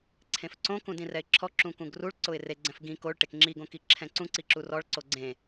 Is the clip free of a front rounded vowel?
yes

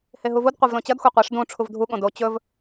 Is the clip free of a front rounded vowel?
yes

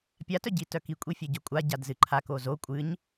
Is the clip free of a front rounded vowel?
no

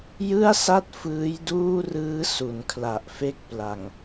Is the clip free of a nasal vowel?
yes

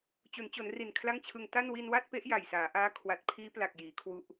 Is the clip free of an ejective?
yes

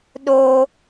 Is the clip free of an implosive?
no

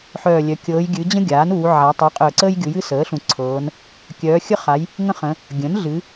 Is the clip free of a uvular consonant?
no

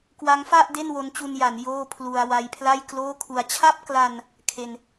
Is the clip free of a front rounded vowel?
yes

